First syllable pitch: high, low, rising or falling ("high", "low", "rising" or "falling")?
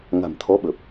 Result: low